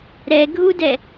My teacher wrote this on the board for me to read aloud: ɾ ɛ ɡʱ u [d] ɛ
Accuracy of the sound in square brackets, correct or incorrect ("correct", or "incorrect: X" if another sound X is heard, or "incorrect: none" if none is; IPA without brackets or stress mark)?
correct